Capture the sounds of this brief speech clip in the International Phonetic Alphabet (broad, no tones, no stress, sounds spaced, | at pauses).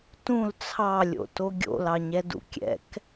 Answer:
t ũ l t͡sʰ ɑ lʲ o̰ t o ɡʲ o̰ l ɑ ɲ ɛ d ṵ kʲ ɛ̰ k